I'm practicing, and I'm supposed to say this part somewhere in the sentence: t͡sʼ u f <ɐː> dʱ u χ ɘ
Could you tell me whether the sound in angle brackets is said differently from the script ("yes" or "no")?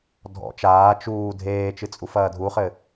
no